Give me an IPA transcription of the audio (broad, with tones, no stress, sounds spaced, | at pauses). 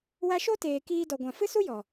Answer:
w a˧ ʃ o˦ t eː˨ k iː˧ d ɔ˨ ɡʷ ã˨ f ɨ˦ s u˦ j ɔ˨